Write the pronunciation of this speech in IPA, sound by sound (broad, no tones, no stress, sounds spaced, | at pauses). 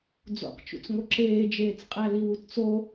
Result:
d͡z o̰ q t͡ʃ ṵ t͡s ŋ o ǁ eː d͡ʒ eː t͡s qʼ æ l i w u t t͡s o